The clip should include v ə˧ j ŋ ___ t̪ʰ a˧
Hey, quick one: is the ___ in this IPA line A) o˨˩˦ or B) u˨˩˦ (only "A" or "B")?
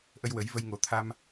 A